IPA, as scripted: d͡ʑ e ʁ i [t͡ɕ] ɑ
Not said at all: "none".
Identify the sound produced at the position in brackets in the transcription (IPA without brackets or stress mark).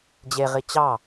t͡ɕ